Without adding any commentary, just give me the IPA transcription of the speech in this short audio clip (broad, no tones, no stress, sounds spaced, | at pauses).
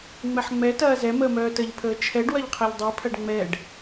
ŋ͡m ɛ ħ ŋ͡m ɛ t ɐː z ɛ m əː m œː t ə ʎ pʰ əː t͡ʃʰ ɛ ɖ w ɐ ʎ qʰ ɛ ʎ dˤ i pʰ ɐ ɖ ŋ͡m ɛ ɖ